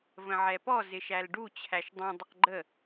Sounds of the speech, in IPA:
v ə̃ ʕ ɛ p ɔ z ɪ ʃ æ l ɖ u t͡ɕʰ æ ʃ dˤ ũ dˤ ʌ q ɡ͡ǃ ə

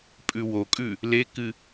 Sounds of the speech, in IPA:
pʼ ʉ w o kʼ ʉ | l e k ɨ

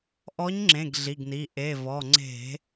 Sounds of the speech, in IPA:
ʔ ɔ˨˥ ɲ ŋ͡ǁ ẽ˩˧˩ ɡ ɮ i˩˧˩ ɡ n i˩˧˩ ʔ e˩˧˩ v ɔ˩˧˩ ŋ͡ǀ e̤˧˩˧

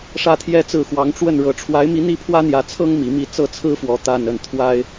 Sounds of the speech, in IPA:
ʂ ä˥˩ t̪ʰ j ɛ˥ t͡s ɹ̩˥˩ x w ɑ˧˥ ŋ ʈ͡ʂ w ə˥˩ n ɻ ɤ˧˥ ʈ͡ʂʰ w a˧˥ ɪ̯ m i˧˥ n̪ i˥˩ pʰ w ä˥ n̪ j ä˧˥ t͡sʰ ɤ˥ ŋ m i˧˥ m i˥˧ t͡s ɤ˥˩ t͡sʰ ɹ̩˥ f w ɔ˧˥ t̪ a˥˧ n ə˥˩ n t̪ʰ w a˥ ɪ̯

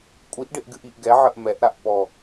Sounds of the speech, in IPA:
kʷʼ i ʔ ɖ ɪ ʔ ɡ ɨ ʔ i ʔ ɡ ɛ ʕ ə ʔ m ɛ ʔ ɾ a ʔ p ɔ

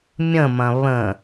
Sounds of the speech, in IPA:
mʲ ə̃ m ɐ̃ β ə̃

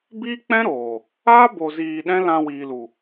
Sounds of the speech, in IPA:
b iː˦ k͡p ɛ̃˦ ɾ oː˨ | aː˦ b o˨ z iː˨ ɗ ɛ̃˦ l ã˧ w iː˨ l u˨

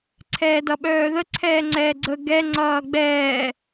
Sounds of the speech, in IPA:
ǀʰ ɛː d ʌ ɓ œː ð ə ǀʰ ɛː ŋ͡ǀ ɛː ɡ͡ǀ ə ɡ ɛ ŋ͡ǀ ʌː ɡ͡b ɛː

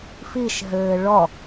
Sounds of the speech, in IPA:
f i ʃ ɦ ɘː ɭ ɔ

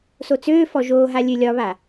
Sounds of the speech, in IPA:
s o t͡s øː f ɔ ʒ oː ɦ a lʲ ø lʲ ɒ β a

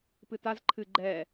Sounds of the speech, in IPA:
p ɨ t a z ǃʰ ɨ ɡ͡ǃ ɛ

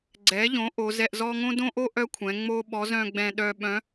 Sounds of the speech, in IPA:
ɡ͡ǀ ɛ˩˧ ʎ õ˩˧ ʔ o˩˧ z ɛ˧ ʔ z ɔ˥ ŋ õ˥ d õ˥ ʔ o˥ ʔ œ˥ kʷʰ ɛ̃˩˧ ŋ͡m o˥ ɓ ɔ˧˥ z œ̃˧ ɡ͡b ɛ̃˧ ɗ œ˧ ɓ œ̃˧˥

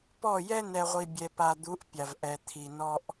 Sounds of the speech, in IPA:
p ɔ˦˨ j ɛ˦ n ɛ˨ ʁʷ i˨ bʲ ɛ˨ p a˨ d̪ u˨˦ ʔ pʲ a˨ v ʔ ɛ˨ t̪ʰ i˨ n ɔ˦ ʔ

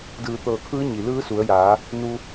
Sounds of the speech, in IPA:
d ɯː˧˩ t̪ ɤː˧˩ kʰ ɯː˧˥ ɲ i˩ l ɯː˧˥ s u˩˧ ə̯ j aː˩˧ | n u˧

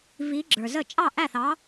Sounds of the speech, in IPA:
v i˧˥ ɡ͡ǁ ə˞˨ z ə˥˨ t͡ʃʼ ɑ˥˨ ʔ æ˥˨ θ ɑ˧˥

